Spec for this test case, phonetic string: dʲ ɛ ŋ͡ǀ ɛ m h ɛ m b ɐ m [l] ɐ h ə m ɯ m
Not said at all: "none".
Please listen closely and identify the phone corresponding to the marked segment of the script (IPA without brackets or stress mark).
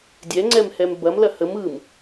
l